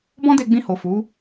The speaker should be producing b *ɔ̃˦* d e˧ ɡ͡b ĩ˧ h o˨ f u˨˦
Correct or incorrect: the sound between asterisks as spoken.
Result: correct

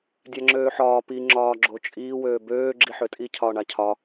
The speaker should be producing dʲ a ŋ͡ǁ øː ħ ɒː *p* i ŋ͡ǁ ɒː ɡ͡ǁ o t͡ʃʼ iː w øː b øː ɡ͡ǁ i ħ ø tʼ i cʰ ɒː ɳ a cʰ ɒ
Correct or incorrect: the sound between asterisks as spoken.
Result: correct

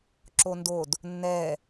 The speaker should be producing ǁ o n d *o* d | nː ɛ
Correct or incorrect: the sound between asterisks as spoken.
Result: correct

